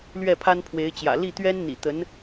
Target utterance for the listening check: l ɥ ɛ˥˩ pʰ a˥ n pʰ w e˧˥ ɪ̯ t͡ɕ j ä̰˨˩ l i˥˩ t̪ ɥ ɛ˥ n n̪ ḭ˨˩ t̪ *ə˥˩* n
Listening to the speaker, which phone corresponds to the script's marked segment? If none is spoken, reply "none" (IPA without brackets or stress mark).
ə˧˥